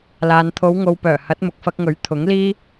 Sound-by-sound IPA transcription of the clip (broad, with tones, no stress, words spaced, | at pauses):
laː˨nt̪ʰo˨˧wŋo˨wpœː˨˩ hɐ˨˥t̚mʊ˨k̚fɐ˧k̚ŋɵ˨˥ɥ t̪ʰʊ˨˥ŋliː˥